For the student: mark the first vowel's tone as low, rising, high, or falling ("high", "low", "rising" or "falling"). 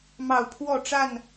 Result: falling